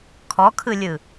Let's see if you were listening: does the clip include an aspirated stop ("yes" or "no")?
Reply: yes